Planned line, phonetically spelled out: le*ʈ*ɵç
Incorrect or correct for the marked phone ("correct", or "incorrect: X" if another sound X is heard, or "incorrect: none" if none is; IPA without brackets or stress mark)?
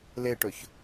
correct